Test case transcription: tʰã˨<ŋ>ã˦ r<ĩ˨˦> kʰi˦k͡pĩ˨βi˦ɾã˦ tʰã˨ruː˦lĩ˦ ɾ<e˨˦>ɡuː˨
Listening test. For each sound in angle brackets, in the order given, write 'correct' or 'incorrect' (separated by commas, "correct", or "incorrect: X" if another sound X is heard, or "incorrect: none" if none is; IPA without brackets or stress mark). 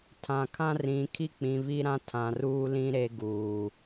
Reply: incorrect: kʰ, correct, incorrect: e˦